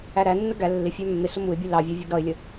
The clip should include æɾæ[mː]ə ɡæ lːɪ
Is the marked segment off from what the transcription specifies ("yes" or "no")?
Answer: yes